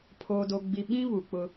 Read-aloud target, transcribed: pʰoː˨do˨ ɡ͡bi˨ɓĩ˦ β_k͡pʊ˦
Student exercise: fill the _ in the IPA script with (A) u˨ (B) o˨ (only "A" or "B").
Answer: A